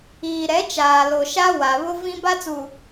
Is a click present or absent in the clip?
absent